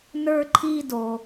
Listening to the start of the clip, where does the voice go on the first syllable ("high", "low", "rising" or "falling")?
high